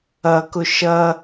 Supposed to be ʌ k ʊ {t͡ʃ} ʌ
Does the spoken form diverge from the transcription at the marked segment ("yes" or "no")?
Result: yes